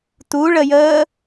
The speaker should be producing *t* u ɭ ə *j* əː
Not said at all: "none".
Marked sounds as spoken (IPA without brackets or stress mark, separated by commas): t, j